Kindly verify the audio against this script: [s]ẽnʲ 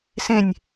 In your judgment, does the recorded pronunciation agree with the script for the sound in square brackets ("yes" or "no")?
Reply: yes